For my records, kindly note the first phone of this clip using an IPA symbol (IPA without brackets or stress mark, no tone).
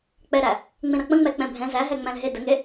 k͡p